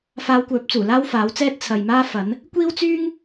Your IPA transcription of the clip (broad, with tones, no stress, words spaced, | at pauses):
faː˧wkʷœː˨˥p̚t͡suː˨˩ laː˥wfaː˨˥wt͡sɛː˥t̚ t͡sʰɐ˨j maː˥fɐ˨˥n | kʷiː˥wt͡syː˥ŋ